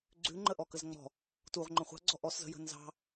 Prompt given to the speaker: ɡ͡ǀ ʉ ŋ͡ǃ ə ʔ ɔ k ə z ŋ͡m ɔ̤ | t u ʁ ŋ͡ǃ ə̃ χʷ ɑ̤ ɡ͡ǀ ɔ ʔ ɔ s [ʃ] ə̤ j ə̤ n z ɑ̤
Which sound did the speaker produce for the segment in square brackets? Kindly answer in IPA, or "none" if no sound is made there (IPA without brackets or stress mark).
z